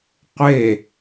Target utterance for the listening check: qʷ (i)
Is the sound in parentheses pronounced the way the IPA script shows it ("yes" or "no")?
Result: no